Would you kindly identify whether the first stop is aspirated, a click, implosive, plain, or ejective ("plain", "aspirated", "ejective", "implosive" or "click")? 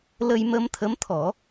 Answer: aspirated